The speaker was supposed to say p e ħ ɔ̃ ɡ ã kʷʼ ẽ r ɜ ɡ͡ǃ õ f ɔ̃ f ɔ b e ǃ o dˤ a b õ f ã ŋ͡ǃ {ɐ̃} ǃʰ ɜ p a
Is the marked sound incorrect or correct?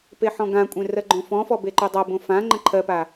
incorrect